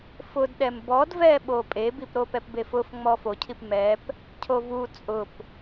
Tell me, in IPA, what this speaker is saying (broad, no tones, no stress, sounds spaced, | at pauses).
f ʊ d ɗ ɛ m b ɔ d v ɛ ɓ o pʼ e b i p ɾ o p ɛ p b e f ʊ f ŋ͡m ɔ f o cʰ i p m ɛ p | cʰ o v u t͡sʼ ʊ p